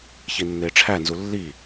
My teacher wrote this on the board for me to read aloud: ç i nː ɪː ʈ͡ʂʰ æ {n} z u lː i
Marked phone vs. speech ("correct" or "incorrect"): correct